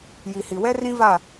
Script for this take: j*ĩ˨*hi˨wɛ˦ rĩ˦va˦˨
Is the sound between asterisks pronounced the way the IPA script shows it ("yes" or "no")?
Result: no